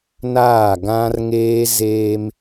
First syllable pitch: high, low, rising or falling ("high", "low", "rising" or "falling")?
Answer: falling